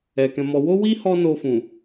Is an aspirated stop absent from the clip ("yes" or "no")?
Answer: yes